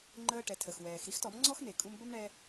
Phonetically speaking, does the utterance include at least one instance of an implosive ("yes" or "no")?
no